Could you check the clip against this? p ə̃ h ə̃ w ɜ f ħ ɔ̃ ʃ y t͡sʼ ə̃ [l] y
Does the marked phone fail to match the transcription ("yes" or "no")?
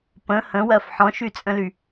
no